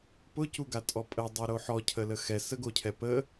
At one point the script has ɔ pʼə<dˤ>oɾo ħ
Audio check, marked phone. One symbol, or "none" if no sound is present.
dˤ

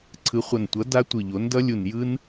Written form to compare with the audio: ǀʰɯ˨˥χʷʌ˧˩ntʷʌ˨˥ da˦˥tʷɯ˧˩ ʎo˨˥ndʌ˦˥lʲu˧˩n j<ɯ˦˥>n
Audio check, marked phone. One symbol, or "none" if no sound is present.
ɯ˦˥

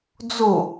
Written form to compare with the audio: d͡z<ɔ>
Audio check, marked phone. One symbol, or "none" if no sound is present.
o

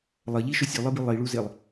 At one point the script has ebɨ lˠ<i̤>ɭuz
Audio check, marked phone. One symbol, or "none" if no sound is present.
i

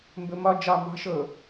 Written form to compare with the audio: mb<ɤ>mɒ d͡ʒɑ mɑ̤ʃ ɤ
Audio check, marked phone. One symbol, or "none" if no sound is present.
ɵ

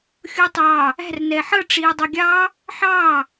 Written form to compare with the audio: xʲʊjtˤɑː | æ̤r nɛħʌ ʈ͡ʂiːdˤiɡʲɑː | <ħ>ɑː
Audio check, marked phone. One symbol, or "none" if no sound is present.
ħ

